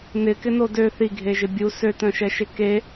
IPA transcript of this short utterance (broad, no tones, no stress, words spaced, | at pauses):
nɪkɪno dø θiɡʱeʒɪ bʲu søtœ̃ʃɛʃɪ ke